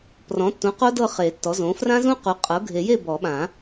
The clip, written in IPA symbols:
p r ɔ̃˩˥ tː ũ˩˥ q o˦˥ d ɤ˥˨ χ e˨˩˦ tː ɔ˩˥ z õ˩˥ f r ã˦˥ z ũ˦˥ q u˩˥ qʼ ɤ˩˥ ɡʱ e˨˩˦ j e˥˨ b ɔ˨˩˦ ɓ ã˨˩˦

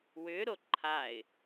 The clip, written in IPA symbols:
w ʏ ɾ o ǃʰ a ɪ̯

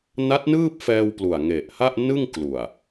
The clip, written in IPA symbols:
n a˦˥ t̚ n ɯː˥˩ p̚ f ɛː˧ w p l u˨˩ a̯ ŋ e˨˩ ʔ h a˥˩ ʔ n ɯ˥˩ ŋ k l u˨˩ a̯

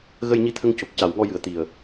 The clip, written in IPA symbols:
ɣ ə˧ j ɲ i˧ t̪ʰ ə˧ ŋ c o˨˩ k̚ c a˨˩ w ŋ ɔ˧ j ɨ˨˩ ə̯ t̪ i˨˩ ə̯

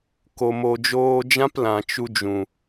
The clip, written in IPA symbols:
k o˨ m o˨ d͡ʒ oː˧ d͡ʒ ã˦ p l ã˨ t͡ʃ u˧ d͡ʒ ũ˨

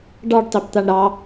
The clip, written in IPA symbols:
ɖ ɑ ɖ tˤ e b t̪ a ɳ ɾ ɑ

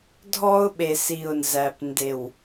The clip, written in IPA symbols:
dʱ ɔ˦ ʊ̯ ɓ e˨ s i˨ ʊ̯ n z æ˨ p n d e˨ w

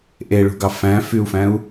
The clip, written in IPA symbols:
ʔ e ɭ ṳ ɡ ɑ f æ̃ f y u̯ f æ̃ u̯

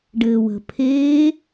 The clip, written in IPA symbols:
ɖ ɘː w ə̤ pʰ eː

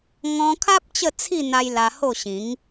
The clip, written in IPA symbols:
ŋ ɔ̃˧ kʰ a˦ p̚ t͡ɕ ə˥˧ t͡sʰ i˥˧ n̪ a˧ j l a˧ h o˥˧ ɕ ĩ˨˦ ŋ

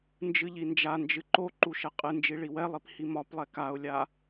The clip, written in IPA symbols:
n d͡ʒ ɨ ʎ i n d͡ʒ a n d͡ʒ ɨ ǃ o ǃ u ʃ ɛ qʼ ɨ n d͡ʒ i ɭ i w ɛ lˠ i p h i m ɒ p lˠ ɛ k a ʊ̯ lʲ a

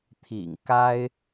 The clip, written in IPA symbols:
t̪ʰ ḭ˨˩ ŋ k a˥ ɪ̯

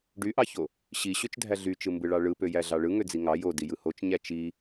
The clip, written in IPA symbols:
ɖ y ʔ ɑ ç o | ɕ i ɕ ø t͡ʃ dʱ æ ɮ y t͡ʃ ɯ m b ɯ ɭ ɑ ɭ ɯ p ø j æ ɮ ɑ ɭ ɯ ŋ ø d͡z i ŋ ɑ j o d i j ɯ h o t͡ʃ ɲ æ t͡ʃ i

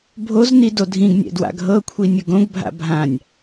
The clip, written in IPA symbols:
bʱ o z n i d o dʱ ĩ ɡ nʲ ɛ̰ d w a̰ ɡʱ ɤ kʷʰ i nʲ ɯ ɡ õ ɡ bʱ a̰ bʱ ã nʲ

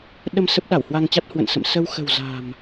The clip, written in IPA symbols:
ɗ ə˧ m s ə˦˥ p̚ ɗ a˧˩ w h w a˧ ŋ t͡ɕ a˦˥ t̚ h w ə̰˧˨ n s ə̰˧˨ m s ə˧ w x ə̤˨˩ w z a̤˨˩ m

